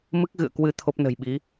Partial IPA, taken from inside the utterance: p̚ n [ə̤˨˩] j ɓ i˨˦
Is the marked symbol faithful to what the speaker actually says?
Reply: yes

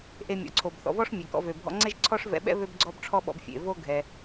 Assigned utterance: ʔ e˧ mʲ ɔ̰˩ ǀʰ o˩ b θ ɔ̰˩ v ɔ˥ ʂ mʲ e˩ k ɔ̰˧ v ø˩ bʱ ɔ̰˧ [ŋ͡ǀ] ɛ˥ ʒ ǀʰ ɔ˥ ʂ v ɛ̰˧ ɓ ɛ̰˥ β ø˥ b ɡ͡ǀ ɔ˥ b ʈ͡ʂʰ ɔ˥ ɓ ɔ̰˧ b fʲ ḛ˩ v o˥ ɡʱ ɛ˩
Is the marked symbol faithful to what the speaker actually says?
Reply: yes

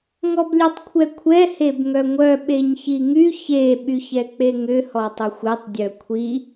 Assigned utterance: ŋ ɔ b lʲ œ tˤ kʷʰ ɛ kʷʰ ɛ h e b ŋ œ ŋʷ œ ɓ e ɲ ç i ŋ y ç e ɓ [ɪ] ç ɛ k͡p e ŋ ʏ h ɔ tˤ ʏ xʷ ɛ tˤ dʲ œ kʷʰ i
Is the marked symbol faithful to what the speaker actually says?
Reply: no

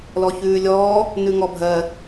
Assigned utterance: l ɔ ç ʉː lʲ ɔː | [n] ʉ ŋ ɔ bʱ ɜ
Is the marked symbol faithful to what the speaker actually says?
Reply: yes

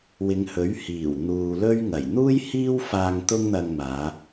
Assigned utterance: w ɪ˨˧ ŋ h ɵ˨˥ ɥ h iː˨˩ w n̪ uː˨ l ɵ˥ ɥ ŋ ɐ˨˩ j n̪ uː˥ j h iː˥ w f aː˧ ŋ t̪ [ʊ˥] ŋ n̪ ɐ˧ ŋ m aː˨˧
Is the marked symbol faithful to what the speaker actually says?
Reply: yes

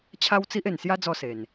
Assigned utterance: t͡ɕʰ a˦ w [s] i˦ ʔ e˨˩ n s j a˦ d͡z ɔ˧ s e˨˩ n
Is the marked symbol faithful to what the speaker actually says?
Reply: no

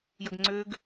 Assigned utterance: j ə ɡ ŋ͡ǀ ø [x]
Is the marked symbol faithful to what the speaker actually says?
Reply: no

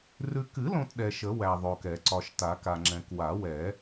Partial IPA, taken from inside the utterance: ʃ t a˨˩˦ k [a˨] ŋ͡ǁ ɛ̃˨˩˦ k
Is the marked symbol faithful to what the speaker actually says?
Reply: yes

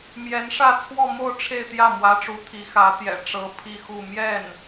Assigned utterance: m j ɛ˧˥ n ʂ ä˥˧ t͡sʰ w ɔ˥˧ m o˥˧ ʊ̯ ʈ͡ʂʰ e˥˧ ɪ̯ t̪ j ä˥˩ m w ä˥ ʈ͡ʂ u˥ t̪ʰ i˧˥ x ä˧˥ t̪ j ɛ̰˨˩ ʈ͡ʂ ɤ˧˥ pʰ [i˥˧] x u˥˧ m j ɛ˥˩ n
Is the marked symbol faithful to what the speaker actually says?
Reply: yes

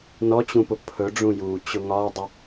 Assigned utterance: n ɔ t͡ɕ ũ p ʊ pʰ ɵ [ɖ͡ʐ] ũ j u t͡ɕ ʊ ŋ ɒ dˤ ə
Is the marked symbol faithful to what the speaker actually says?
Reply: yes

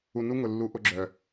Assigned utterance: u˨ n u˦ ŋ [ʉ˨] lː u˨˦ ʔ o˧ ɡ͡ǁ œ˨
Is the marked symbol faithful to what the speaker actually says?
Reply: no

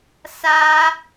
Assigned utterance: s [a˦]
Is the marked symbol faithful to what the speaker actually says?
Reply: yes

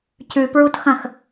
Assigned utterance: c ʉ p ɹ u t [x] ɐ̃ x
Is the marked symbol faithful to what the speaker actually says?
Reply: yes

